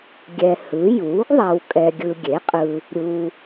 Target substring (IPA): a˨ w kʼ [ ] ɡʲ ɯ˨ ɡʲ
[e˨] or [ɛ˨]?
ɛ˨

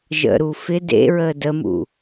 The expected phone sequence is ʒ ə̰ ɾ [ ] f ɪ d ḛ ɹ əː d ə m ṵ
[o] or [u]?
u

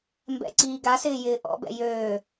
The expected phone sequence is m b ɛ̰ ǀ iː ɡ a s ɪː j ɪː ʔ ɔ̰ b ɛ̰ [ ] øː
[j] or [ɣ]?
j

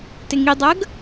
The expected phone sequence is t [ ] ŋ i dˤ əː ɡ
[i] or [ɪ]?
ɪ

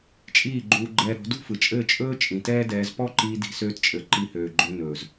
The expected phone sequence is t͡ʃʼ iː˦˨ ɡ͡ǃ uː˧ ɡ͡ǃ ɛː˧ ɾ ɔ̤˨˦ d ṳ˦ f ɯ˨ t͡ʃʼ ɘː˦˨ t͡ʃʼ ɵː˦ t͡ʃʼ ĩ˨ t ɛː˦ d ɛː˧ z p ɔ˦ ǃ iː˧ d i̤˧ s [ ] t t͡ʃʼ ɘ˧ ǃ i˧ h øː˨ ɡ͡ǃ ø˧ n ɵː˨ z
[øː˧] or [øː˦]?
øː˦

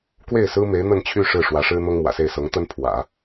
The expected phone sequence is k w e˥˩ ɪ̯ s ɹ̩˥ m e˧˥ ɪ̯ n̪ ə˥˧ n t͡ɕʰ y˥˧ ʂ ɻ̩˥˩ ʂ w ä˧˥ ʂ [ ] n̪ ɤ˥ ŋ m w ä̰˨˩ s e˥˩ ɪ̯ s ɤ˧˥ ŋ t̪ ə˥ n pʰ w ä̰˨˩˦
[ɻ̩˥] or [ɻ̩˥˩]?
ɻ̩˥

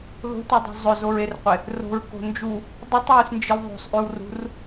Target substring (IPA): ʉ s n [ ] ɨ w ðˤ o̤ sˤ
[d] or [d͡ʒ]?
d͡ʒ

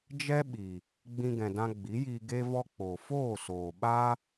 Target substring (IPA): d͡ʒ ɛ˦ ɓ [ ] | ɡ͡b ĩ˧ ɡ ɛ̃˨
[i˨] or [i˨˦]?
i˨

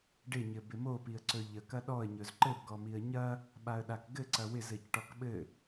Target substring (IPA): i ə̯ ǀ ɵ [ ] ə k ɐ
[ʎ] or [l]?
ʎ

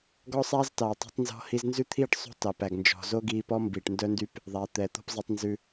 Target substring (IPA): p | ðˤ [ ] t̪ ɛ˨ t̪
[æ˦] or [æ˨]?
æ˨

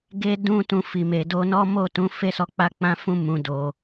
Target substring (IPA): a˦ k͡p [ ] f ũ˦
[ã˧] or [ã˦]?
ã˦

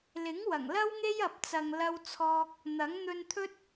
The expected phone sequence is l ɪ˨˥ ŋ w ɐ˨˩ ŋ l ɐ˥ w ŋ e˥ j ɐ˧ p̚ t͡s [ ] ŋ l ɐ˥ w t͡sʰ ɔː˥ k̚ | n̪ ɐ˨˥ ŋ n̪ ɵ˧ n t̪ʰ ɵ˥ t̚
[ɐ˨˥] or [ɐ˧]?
ɐ˧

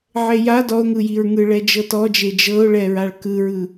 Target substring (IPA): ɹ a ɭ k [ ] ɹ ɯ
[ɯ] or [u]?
ɯ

